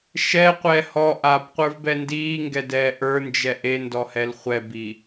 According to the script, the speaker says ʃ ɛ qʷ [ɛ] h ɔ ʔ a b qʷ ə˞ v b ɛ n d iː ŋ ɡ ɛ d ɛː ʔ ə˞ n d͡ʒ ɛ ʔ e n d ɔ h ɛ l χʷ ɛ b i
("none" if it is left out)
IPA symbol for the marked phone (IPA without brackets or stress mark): ɛ